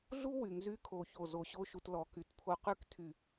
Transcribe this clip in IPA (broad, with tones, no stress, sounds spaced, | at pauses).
ɮ u˥ w y˩˧ ŋ z y˥˧ kʰ o˧˩ ç o˧˩ z o˧˩ ɕ o˥˧ ʃ u˧ t l ɔ˩˧ k y˩˧ t pʰ o˧ q y˥ k tʰ y˧˩